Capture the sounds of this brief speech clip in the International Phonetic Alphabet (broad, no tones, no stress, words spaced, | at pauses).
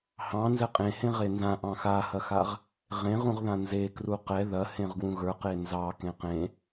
hɑ̃ nzɛqʼẽhẽ ʁenzã ʔɑ̃xahɐxaʁ | ʁẽʁũʁ ðãnzekru qɛ ðɐhẽʁɡwũ ɣə˞qe nzɑ kẽqẽ